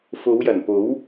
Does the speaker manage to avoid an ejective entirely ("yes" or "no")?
yes